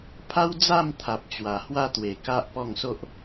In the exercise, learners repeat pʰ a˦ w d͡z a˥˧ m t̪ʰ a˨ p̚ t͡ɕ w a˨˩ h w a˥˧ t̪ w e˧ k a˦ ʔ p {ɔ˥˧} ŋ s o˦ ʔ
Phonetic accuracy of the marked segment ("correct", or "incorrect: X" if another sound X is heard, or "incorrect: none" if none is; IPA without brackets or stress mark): correct